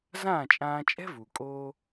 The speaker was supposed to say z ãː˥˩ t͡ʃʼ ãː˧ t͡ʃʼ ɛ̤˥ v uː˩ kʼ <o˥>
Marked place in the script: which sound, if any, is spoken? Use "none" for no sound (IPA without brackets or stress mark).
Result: oː˥